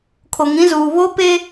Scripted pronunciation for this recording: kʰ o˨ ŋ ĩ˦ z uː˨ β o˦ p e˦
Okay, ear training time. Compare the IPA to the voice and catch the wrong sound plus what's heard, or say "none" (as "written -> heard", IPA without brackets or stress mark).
none